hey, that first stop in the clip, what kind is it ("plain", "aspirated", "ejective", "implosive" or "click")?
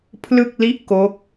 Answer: aspirated